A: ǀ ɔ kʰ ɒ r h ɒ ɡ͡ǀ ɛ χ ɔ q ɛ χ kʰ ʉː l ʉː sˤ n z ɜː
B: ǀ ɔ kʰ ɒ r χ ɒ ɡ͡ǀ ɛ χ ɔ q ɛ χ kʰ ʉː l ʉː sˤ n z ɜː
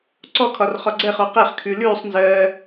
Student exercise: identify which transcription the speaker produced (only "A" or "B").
B